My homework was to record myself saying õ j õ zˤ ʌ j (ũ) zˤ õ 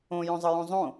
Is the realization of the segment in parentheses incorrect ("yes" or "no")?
no